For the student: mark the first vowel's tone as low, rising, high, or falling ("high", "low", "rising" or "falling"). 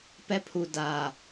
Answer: high